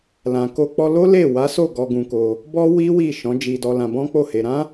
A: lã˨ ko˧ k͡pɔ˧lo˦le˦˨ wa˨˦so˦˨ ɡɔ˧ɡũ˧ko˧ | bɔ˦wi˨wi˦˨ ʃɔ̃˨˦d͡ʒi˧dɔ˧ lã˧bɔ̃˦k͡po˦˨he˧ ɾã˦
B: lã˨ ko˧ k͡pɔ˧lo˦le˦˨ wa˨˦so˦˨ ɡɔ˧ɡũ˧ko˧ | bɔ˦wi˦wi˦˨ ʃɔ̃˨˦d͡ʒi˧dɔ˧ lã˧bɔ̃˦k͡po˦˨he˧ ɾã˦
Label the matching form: B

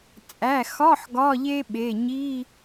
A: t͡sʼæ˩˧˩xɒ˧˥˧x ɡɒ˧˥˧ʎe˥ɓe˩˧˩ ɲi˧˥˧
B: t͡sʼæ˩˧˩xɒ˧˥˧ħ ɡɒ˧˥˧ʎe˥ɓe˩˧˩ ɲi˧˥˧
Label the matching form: B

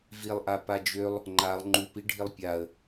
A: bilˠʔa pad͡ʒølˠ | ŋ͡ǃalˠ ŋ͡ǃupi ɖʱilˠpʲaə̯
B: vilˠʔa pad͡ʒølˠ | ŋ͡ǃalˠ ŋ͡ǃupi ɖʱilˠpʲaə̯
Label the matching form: B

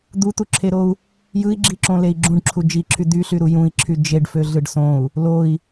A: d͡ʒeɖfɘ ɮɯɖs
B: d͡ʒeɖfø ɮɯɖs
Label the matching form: B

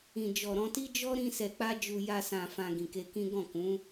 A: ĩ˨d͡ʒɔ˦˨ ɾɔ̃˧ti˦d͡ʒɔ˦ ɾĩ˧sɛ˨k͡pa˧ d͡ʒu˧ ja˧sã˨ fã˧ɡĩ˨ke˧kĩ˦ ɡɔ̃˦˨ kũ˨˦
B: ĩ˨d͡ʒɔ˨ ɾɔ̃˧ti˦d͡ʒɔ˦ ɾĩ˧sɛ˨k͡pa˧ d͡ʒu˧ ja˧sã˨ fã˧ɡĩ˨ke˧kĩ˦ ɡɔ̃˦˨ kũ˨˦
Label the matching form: B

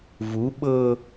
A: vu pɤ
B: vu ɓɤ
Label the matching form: B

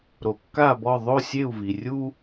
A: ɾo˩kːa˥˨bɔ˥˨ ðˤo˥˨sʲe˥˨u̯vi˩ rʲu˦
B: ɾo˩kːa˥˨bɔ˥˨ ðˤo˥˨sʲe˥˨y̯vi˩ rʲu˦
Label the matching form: A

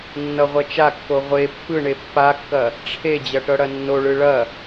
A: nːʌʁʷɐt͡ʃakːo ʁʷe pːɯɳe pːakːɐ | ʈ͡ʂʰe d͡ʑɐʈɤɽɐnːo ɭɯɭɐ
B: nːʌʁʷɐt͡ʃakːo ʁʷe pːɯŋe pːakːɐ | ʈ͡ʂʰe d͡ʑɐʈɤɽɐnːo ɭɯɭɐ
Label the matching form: A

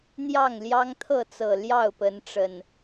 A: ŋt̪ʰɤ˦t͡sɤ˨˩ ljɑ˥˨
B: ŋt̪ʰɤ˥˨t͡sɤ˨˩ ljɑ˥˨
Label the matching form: B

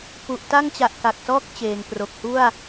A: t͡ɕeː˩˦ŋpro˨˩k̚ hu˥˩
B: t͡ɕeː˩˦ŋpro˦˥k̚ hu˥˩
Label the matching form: A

